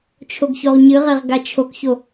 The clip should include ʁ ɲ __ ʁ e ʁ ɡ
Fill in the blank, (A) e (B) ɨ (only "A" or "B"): B